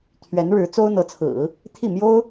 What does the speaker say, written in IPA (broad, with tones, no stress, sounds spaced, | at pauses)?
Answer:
t̪ʰ ɥ ɛ˧˥ n ɻ ɻ̩˧˥ t͡s o˥ ʊ̯ n̪ ɤ˧˥ t͡sʰ ɹ̩˨˩˦ | t̪ʰ i˥˩ m j o˥ ʊ̯